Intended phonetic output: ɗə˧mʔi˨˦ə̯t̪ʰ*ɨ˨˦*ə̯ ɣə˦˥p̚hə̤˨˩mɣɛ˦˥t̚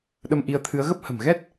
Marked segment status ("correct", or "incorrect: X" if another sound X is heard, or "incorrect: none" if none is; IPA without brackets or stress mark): correct